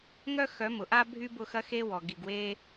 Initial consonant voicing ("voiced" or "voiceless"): voiced